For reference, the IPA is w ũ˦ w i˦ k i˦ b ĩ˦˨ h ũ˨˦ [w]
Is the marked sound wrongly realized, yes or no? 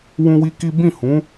yes